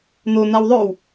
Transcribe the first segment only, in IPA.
n̪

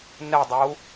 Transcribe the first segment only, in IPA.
n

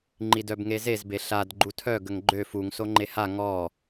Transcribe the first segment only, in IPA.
ŋ͡ǃ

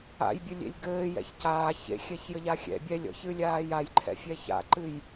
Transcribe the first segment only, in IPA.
a̰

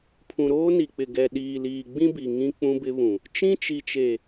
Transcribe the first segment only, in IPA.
pʰ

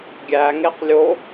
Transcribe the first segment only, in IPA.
ɡʲ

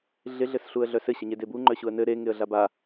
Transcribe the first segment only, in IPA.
ɮ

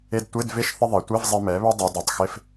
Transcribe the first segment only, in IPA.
e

